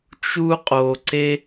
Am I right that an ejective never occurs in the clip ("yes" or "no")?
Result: no